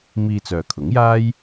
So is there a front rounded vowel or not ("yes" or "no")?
yes